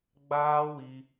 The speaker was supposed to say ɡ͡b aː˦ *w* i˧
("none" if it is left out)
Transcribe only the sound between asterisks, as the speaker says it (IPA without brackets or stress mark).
w